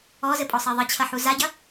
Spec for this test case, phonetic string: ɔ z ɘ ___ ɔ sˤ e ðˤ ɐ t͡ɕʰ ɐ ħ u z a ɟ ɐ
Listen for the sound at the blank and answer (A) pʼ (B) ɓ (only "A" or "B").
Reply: A